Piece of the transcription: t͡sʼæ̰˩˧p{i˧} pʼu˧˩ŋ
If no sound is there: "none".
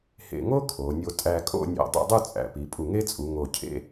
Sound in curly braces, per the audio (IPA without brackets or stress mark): i˩˧